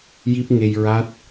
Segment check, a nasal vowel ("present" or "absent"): absent